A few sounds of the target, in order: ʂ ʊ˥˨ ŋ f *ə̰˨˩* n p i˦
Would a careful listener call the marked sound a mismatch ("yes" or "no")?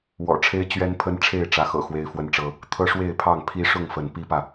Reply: yes